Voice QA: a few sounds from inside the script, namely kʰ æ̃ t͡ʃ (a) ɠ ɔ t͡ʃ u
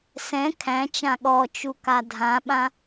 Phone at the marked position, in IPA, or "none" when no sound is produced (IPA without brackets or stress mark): ã